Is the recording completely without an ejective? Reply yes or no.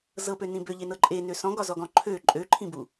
no